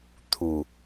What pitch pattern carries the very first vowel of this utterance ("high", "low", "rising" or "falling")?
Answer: low